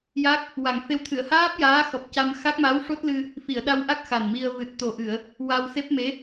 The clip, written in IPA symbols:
ja˦˥k̚ | wa˨˩ŋfe˧w t̪ʰɨ˨˩˨ə̯haː˦˥p̚ jaː˧˥xɔ˨˩p̚ca˧m xa˦˥k̚ma˧˥wʂo˦˥t̚lɨ˧ | fi˨˩˨ə̯ɗa˧wʔa˦˥k̚ xa˨˩n mi˧ə̯ vɨ˨˩t̚t̪o˨˩ʔɨ˨˩˨ə̯ | wa˧wse˦˥p̚me˧˥

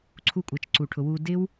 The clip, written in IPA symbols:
ǀʰu˧kʷʼɜ˨t͡ʃ ǀu˨ʈʰʊ˨ wu˨dɪ˧w

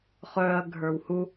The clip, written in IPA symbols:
χœɐ̯ ɡʱə˞whu

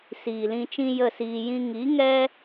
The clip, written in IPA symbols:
siː˨lĩ˧t͡ʃĩ˦ jə˦˨siː˧jĩ˦ ŋi˨˦ ŋɛ˦

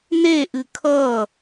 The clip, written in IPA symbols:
neʔɨ kʰʌ

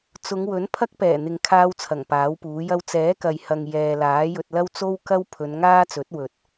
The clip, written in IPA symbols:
t͡sʊ˨˧ŋwɵ˨˥n pʰɐ˥k̚pɛː˨˩n̪ɪ˨ŋkʰaː˧w t͡sʰɐ˨˩ŋpaː˨˥wpuː˨˥jɐ˥w t͡sɛː˨˥kɐ˨jhɐ˨ŋ jɛː˨laː˨˥jɵ˧t̚lɐ˥w t͡so˥wkɐ˥wpʰɵ˨˧n ŋaː˥t͡sɵ˨˥t̚ wɵ˨t̚

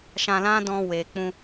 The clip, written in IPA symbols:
ʃã˧lã˦dɔ̃˧ we˨k͡pũ˧

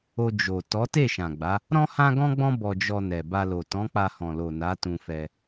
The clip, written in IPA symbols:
o˧d͡ʒo˨ tɔ˨˦te˦˨ʃã˨ɡ͡ba˨˦ | ɾɔ̃˦hã˦ɡɔ̃˦ɡ͡bɔ̃˦ bɔ˧d͡ʒɔ˧ nɛ˨ ba˧lo˨ tɔ̃˨˦k͡pa˧hɔ̃˨lo˨ na˨˦tũ˧fɛ˧

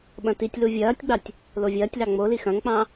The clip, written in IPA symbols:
ɓɐ̃titʲlu vʲɐːtʲɡ͡bɑtʲ | lovʲɐːtʲlɑ ŋ͡moli xɐ̃ŋk͡pɑ̃

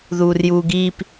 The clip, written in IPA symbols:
ðuːrjuːɡiːp

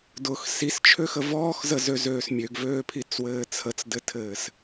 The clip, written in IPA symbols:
dʊx sist͡ʃʰøxə vɔːxzəzøzøːs mʲøɡvøːpʰit͡swɘː t͡sʰət͡sdɘtʰɘːs

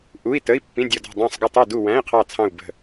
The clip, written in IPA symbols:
ʔu˧˥˧i̯tə˧˥˧i̯ pːĩ˧˥˧dʲʌ˦˨dɔ̤˦˨ dˤæ̃˦˨sˤɡʊ˦˨tˤu˦˨du˦˨ wæ̃˧˥˧i̯qʰɑ˦˨ t͡sʰɑ̃˦˨u̯bə̤˦˨

